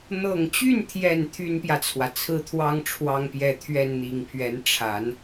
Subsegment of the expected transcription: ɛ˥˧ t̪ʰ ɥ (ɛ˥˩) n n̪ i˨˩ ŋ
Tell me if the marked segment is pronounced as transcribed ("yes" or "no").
yes